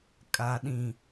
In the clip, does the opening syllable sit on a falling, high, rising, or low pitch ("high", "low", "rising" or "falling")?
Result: low